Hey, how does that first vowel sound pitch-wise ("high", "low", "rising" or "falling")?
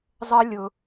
high